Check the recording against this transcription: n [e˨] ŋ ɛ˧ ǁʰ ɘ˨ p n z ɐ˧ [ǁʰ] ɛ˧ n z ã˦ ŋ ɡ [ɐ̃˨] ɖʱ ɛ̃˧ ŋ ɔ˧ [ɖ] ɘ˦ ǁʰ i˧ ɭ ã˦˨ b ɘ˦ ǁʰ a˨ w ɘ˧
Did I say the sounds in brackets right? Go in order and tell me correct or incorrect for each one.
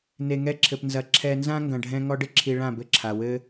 correct, correct, correct, correct

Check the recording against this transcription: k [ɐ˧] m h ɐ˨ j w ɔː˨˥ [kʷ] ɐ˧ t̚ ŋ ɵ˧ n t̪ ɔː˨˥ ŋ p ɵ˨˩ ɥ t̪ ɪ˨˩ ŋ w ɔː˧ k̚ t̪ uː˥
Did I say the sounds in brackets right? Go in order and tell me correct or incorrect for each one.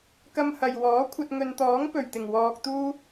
correct, incorrect: kʷʰ

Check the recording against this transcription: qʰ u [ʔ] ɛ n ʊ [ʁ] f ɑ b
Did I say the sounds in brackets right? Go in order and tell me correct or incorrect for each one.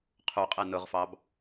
incorrect: qʼ, correct

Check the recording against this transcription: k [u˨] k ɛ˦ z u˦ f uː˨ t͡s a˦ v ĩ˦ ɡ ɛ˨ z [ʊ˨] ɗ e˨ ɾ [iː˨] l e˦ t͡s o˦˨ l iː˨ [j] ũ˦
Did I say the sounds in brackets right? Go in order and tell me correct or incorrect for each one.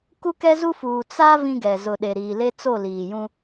incorrect: u˦, correct, correct, correct

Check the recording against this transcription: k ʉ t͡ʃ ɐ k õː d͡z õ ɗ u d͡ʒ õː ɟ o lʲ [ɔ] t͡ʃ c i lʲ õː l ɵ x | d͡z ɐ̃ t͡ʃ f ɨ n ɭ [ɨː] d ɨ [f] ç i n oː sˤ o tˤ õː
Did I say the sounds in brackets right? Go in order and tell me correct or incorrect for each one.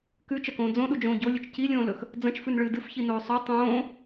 incorrect: ɵ, correct, correct

